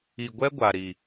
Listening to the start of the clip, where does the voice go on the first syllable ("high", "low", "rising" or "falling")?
low